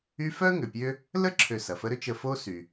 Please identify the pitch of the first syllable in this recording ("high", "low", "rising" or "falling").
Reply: high